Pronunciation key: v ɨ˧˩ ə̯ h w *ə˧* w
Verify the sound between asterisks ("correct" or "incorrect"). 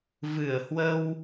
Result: correct